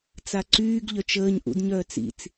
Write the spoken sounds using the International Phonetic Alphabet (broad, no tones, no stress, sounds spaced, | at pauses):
t͡s a ǀ yː ɡ ʎ œ t͡ʃ əː ɲ ʔ ṵ d ɲ œː t͡s ḭ t͡s